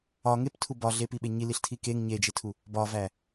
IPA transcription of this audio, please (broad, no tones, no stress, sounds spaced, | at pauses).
ɒ ŋ e p tʰ u b ɒ ɮ e p i ɓ e ɲ i l i ɬ tʰ i k e ŋ ɲ e d͡ʒ e tʰ u | b ɒ v æ